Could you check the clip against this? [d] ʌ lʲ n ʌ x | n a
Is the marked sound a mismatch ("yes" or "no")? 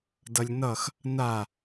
no